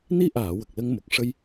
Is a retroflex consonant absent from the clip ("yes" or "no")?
no